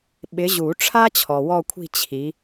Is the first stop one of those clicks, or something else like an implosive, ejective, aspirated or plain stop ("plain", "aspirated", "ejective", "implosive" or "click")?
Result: implosive